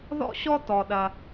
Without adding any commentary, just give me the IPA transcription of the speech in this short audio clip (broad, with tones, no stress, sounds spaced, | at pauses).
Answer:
ð ɔ̰˥˧ ɕ ɔ˥ t ɔ˧ ɗ ɐ˧